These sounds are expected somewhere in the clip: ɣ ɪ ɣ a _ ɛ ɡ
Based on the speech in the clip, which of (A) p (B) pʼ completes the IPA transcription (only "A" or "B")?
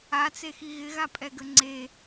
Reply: B